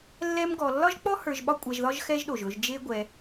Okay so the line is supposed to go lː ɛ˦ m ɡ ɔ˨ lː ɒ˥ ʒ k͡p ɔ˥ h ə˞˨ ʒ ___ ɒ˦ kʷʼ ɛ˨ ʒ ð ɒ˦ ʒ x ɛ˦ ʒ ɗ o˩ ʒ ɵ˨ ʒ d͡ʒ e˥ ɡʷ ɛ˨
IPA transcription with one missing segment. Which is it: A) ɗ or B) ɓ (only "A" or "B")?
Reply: B